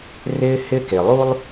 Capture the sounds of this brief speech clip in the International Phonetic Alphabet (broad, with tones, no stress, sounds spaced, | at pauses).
r ɪː˦ h ɪ˦ k e˨ lˠ u˥ lˠ